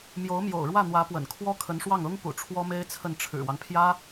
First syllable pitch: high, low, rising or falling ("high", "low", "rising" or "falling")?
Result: rising